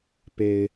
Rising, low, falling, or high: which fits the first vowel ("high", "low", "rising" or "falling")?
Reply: low